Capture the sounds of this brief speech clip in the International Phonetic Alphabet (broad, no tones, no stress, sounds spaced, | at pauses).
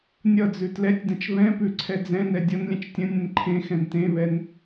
nʲ ʌ d͡z ʉ t l ɛ tʲ d ə̃ t͡ʃ β ɛ̃ p ʉ ǀʰ ɛ d͡z ɛ̃ n ɛ dʲ ʌ n lʲ ɛ̃ t͡ʃ tʲ ə̃ nʲ ɛ̃ n ǃʰ ẽ x ɛ̃ n t ẽ β ɛ n